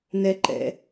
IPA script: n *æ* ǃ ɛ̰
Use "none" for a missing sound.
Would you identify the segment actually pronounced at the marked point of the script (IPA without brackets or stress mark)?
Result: ɛ